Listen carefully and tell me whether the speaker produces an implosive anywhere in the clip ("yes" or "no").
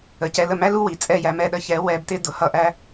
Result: yes